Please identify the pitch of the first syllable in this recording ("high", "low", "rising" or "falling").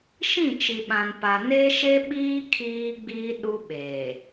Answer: falling